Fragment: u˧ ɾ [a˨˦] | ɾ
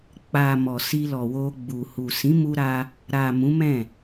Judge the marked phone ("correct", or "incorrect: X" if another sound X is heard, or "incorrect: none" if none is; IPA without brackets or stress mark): incorrect: a˧